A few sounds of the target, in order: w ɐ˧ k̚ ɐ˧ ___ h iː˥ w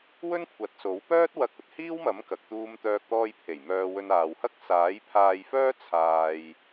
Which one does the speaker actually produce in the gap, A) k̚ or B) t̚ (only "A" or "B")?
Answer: B